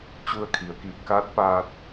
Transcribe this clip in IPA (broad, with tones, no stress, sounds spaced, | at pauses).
t͡ɕ u˧ ə̯ kʰ i˩ ə̯ k i˧˩ p̚ k aː˧˥ t̚ p aː˧ t̚